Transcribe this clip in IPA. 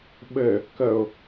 ɓ ɘ | k ə ʊ̯

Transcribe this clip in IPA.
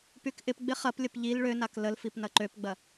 p y k ʔ ɪ p ɡ͡b ɪ χ ɐ p lʲ ə p ʎ i l ɭ ø n a k l ə l f i p n ɐ ǃ ø p ɡ͡b ɐ

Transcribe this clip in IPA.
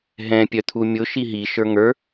ɦ ɛ̃ pʲ œ t̪ʰ u mʲ ʊ ʃ i ɦ i ʃ ə˞ ŋ ə˞

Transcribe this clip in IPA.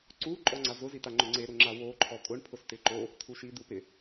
ǀ u ǃʼ ɔ ŋ͡ǀ a z ʊ z i t̪ a ŋ͡ǃ ʊ ŋ͡ǀ e ɾ ʊ ŋ͡ǁ a w o ǃʰ ɔ kʼ ʊ ɳ pʰ ʊ s t̪ ɪ ǃ o | t̪ʰ u ʃ i d̪ u p ɪ

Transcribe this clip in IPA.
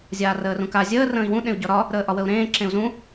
zʲ aː r əː r ũ k a zʲ əː r ə̃ː i̯ w ũ ɗ ẽ u̯ ɟ ɒ ɾ ɒ | ɾ əː ʔ ɒ w ə u̯ ɾ ẽː ǁ ẽ u̯ z ũ

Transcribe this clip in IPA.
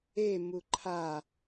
e m u ǃʰ a

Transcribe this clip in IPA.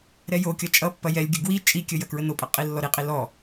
ɾ ɛ j o kʲ ʌ t͡ʃʼ ʌ pː ɐ j ɛ lʲ ɡʲ ə ɡ w i t͡ʃʼ i kʲ ə j ɐ k ɹ ə n o pʼ ɐ qʼ i lː ɔ ɾ i qʼ i l ɔ

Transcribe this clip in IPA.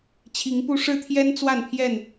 t͡ɕʰ i˨˦ ŋ p u˦ ʂ ɻ̩˦ t̪ʰ j ɛ˦ n t͡s w a˥˨ n pʰ j ɛ˥˨ n

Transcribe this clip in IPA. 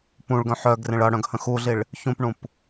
p ũ ɭ ɡ œ̃ ħ œ ɡ r ẽ ɭ ʌ ɽ œ̃ ɡ h ə̃ x u ɮ i ɭ | ç ũ p ɳ ũ p

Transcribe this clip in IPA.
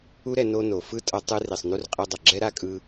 u˥ ɾ ɛ˧ n o˥ n o˩ f ɯ˥ tʼ ʌ˧ tˤ ɯ˥ r i˩ sˤ n u˥ r qʼ ɛ˧ dˤ ʌ˩ ɡ͡ǁ ɛ˥ ɾ a˥ kʼ ɯ˧

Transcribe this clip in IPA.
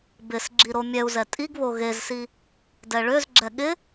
b ɪ s ɡ͡ǁ i ɾ o mʲ ɛ u̯ z ɛ tʼ i ɡ β o ɣ e z s i | d ɛ ɭ ø z ɡ͡ǁ ɛ ɠ ɪ

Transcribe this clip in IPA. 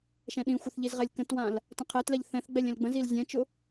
ʃ ɛ̃ ɗ ĩ xʷ ə θ ʎ i z ʁ ɛ lʲ k ə̃ t w ã l | t ə̃ qʰ ɛ t l ɛ ʎ θ ɛ̃ θ ɡ͡b ɛ lʲ ɛ̃ l ɡ͡b ə̃ z i l zʲ ɛ̃ t͡ʃ ʊ

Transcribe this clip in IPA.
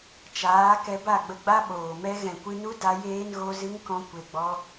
t͡ʃ aː˨˦ k ɛ˧ b a˦˨ ɡ͡b ə˧ ɡ͡b a˦ ɓ oː˨ m ɛ˦ ɣ ɛ̃˨ kʷ ɨ˧ n u˦ d a˧ j eː˧ n ɣ o˧ z ɨ˦ ŋ k ɔ̃˧ kʷ e˧ ɡ͡b ɔ˦

